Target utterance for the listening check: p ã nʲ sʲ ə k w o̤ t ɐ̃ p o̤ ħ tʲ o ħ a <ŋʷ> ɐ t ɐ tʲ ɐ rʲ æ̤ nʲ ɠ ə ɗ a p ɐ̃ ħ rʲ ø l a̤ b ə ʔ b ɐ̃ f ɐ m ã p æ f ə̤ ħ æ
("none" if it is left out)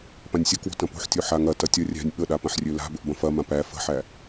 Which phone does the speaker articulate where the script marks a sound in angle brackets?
ŋ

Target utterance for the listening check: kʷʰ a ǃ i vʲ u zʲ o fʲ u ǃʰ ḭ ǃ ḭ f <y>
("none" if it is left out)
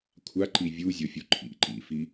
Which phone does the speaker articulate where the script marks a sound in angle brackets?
i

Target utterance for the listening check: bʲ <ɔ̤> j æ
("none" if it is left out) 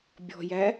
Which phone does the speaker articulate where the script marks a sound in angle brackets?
ɔ̤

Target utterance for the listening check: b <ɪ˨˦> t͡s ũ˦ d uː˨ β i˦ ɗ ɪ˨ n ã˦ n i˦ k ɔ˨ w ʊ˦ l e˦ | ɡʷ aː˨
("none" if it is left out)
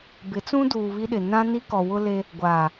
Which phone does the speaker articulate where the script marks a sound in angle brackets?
ɪ˨˦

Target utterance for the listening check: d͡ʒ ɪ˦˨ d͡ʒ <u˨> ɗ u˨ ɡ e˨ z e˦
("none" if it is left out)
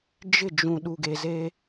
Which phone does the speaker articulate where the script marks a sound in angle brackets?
ũ˨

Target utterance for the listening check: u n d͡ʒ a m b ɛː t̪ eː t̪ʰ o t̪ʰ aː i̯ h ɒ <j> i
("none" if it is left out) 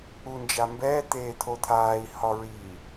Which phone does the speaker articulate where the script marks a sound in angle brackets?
ɹ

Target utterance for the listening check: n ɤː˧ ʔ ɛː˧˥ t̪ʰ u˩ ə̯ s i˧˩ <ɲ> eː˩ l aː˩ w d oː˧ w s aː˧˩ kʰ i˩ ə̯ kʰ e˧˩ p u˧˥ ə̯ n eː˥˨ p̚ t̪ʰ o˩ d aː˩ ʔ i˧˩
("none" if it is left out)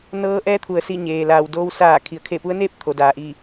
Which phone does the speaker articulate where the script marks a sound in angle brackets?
ɲ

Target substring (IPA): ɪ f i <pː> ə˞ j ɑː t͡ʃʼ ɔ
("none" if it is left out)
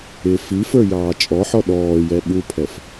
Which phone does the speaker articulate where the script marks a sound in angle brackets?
f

